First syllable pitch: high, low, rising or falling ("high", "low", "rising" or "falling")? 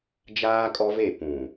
high